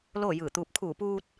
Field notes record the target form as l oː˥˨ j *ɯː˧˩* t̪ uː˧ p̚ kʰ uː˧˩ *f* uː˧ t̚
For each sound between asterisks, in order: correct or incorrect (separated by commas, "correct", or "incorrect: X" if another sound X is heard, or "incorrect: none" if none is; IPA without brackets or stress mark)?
correct, incorrect: p